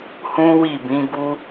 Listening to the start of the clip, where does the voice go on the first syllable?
high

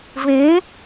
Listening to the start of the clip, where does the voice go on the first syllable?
rising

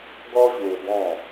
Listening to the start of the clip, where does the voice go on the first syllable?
high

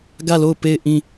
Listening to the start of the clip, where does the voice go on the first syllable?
falling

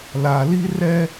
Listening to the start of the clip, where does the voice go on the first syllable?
low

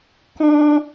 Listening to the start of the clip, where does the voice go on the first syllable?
high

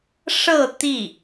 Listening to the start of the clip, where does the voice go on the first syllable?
falling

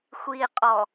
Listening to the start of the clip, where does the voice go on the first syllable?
low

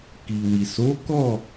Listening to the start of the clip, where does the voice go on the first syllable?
low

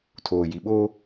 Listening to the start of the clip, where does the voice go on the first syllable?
low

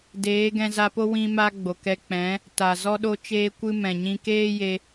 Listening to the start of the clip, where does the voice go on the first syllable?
rising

